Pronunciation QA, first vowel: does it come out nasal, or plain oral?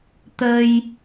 oral